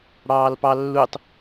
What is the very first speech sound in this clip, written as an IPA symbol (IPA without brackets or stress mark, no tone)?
ɽ